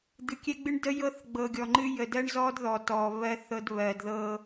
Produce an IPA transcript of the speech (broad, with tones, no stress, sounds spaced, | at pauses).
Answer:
d̪ ɨ˨ kʲ ɛ˦ ɡ͡b ɨ˦ ɳ d ə˦ j ɤ˦ θ ɡ͡b ɤ˨ ɡʲ ɔ˨ ŋ͡ǃ ɨ˦ j ə˨ d ɜ˦ ɳ z ɔ˦ d ð ɔ˨ t ɔː˨ β ɜ˦ θ ɤ˦ d β ɜː˨ d ð ɤ˦